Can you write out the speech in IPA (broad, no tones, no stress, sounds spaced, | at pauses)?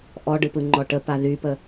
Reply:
ʔ ɔ ɖ ɯ p ɯ ŋ͡ǃ ɔ ʈ ə p a ð y p ə